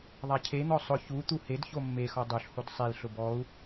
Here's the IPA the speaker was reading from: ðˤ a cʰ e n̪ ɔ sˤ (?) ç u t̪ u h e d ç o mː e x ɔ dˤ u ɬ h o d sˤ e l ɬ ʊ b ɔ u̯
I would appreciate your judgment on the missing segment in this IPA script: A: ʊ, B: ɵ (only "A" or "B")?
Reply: A